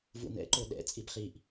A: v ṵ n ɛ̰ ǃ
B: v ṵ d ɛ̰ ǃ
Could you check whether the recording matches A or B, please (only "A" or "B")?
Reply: A